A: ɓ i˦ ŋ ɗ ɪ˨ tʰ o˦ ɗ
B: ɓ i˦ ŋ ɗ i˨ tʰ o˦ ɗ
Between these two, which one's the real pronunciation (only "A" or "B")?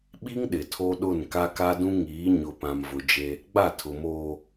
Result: A